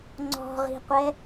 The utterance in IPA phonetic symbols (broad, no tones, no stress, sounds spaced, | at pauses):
ŋ͡ǀ ɔ̤ ʁ i̤ qʷ ɛ